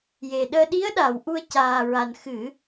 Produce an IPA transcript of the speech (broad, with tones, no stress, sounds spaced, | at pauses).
j e˨˩ ɗ əː˧ ɗ i˧˥ ə̯ ɗ a˨˩˨ w ʔ u˧ ə̯ c aː˨˩ ɹ a˨˩ n x ɨ˨˩˦